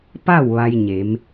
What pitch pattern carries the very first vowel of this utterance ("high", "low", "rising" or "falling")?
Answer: falling